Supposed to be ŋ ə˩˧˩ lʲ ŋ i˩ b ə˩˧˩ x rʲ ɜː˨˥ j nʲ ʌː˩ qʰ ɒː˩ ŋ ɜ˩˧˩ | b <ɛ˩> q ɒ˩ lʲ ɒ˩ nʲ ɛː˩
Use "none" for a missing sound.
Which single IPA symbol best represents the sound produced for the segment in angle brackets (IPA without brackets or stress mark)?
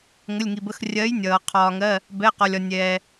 ɛ˩˧˩